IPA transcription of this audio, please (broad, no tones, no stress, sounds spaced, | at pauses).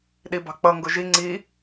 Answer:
ɗ i b ɑ̤ k͡p ʌ ŋ ɡ ʊ ʒ i ŋ͡ǀ i